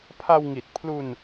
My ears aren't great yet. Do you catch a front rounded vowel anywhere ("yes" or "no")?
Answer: no